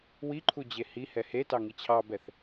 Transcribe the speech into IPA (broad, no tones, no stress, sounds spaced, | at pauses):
w i ǃʰ u d͡ʑ e h i h ɛ h e t ɑ ŋ i t͡ɕʰ ɑ b ɛ θ